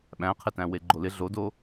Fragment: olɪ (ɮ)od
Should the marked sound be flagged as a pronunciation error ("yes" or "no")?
no